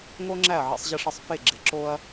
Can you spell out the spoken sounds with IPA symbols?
ŋ o˥ ŋ͡ǁ æ˥˩ ɐ̯ ʕ ḛ˧ sˤ ʑ ɪ˧ ʂ ɪ˧ sˤ f e˥˩ ɡ͡ǁ ɪ˩˥ ǁ o˥ ɐ̯

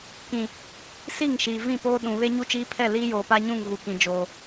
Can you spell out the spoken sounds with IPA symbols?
k ĩ˨ | s i˦˨ ŋ ʃ iː˨ v ĩ˦˨ p oː˦ ɗ ũ˨ β e˦ ɲ u˦ t͡ʃ iː˦ pʰ ɛ˦˨ l iː˦ j oː˨ p a˦ ɲ ũ˦˨ ŋ ɣ u˨ k ĩ˨ d͡ʒ oː˨

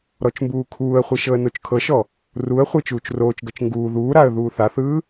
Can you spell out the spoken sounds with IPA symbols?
ɾ ɔ t͡ʃ m b uː kʰ uː ə̯ χʷ i ʃ ɤ ə̯ n o t͡ʃ kʰ ɤ ʃ ɔ | r u ə̯ χʷ e t͡ʃ uː t͡ʃ r oː t͡ʃ ɡ ɤ t͡ʃ ŋ ɡ uː ð uː ɾ a ə̯ ð uː θ a θ ɯː

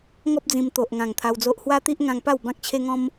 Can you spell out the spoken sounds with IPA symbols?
ŋ ɔ˦ p̚ d͡z ĩ˧ m t̪ o˨ ʔ ŋ ã˨˩ ŋ t̪ʰ a˧ w d͡z o˦ ʔ h w a˦ t̪ i˦ ʔ ŋ ã˧ ŋ p a˥˧ w b ã˦ k̚ t͡ɕʰ e˦ ŋ ɔ̃˦ m

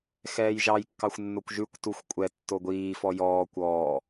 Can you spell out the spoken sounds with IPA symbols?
x ɛː j ʒ ɑ j kː ɑ xʷ nː o kʷ ʒ ʉ kʷ t u xʷ kʷʼ ɛ tː o ɡʷ iː f ɔ j ɔː kʷ ɔː

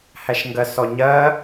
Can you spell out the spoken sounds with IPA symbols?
h æ ʃ ŋ ɡ ɜ s ɔ ɲ ɜ

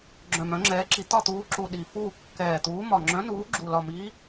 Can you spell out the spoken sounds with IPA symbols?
ɡ͡ǁ œ̃˨˩ m œ̃˨˦ ŋ͡ǁ ɛː˨˦ ǁ i˨˦ t̪ ɒ˦˨ t̪ uː˨˦ ǁ u˨˩ ɗ i˨˩ f uː˦˨ kː ɛː˨˩ t̪ uː˨˦ m ɒ˨˩ ŋ͡ǁ œ̃˨˦ n uː˨˦ ɡ͡ǁ u˨˩ l ɒ˨˩ m iː˨˦

